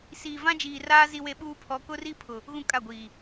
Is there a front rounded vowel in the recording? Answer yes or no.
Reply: no